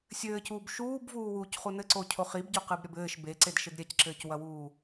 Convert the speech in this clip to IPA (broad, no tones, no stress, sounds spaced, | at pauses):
sʲ ɘː c uː b ʃ uː b v uː w uː c χ u n ɘ ǀ o cʰ o χ i b ɟ o q ɨ b ɾʲ ɐ b ɘː ʃ b e ǀ e d ʃ ɘ d ɾʲ ɛ c ǁ ɘː c w ɐ w uː